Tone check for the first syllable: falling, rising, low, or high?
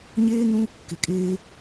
high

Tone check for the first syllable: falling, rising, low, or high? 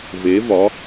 rising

